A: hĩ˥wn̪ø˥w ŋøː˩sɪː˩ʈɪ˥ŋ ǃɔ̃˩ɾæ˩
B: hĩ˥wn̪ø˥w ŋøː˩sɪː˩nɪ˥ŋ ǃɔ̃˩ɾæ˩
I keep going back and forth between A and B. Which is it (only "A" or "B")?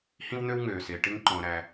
A